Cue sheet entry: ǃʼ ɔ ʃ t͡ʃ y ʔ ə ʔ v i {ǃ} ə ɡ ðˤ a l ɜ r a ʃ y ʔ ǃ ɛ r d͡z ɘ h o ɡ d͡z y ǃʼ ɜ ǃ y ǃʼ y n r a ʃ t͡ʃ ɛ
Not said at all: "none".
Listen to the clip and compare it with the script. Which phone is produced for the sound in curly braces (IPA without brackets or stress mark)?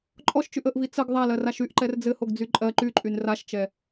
t͡s